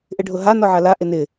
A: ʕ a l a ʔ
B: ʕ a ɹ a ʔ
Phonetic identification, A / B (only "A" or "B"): A